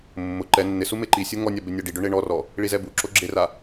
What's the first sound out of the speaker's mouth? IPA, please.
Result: mː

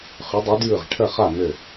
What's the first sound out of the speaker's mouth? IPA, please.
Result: χ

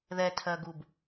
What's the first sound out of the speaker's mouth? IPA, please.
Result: ð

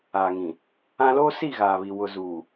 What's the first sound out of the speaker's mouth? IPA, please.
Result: aː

